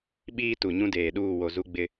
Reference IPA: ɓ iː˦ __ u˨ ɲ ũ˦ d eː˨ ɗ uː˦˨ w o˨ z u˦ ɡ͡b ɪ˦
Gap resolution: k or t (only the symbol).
t